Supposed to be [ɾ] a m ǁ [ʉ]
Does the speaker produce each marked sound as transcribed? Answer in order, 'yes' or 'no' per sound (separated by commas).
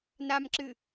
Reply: no, no